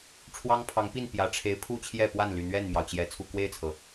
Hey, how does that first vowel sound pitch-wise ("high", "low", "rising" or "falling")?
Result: high